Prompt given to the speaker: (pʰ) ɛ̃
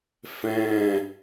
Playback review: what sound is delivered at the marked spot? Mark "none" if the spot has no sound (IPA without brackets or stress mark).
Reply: f